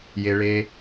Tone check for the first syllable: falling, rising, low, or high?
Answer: low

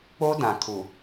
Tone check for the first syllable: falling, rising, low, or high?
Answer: high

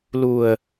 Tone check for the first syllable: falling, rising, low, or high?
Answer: low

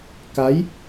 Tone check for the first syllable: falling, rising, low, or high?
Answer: rising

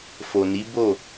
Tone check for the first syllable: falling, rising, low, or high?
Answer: low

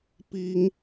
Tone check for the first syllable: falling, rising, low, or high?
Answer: high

